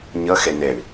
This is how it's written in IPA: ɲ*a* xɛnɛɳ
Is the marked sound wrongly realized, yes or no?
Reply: yes